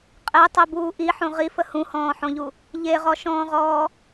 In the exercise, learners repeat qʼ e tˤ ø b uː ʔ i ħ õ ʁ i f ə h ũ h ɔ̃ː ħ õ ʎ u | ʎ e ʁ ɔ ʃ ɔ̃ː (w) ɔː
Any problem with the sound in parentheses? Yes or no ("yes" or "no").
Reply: yes